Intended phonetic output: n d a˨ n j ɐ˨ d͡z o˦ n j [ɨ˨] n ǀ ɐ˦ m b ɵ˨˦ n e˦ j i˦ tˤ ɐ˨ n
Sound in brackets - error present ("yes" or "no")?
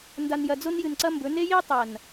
no